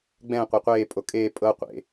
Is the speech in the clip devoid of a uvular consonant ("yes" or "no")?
no